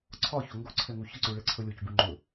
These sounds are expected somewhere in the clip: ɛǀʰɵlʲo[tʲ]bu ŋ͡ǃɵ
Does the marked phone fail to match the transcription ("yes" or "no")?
yes